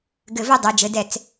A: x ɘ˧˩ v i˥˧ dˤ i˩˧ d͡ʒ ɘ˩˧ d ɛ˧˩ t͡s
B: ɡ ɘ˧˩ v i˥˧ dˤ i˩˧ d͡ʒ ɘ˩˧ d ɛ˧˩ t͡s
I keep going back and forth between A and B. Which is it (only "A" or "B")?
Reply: B